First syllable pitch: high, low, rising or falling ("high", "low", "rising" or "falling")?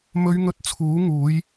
high